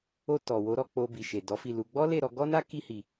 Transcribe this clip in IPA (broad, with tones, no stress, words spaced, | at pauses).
o˧ tɔ˨wo˨˦ ɾɔ˦˨k͡po˧ bi˨ʃe˨ dɔ˨˦fi˦˨lu˧ ɡ͡bɔ˦le˦˨ ɾɔ˧ɡɔ˦na˦ ki˧hi˨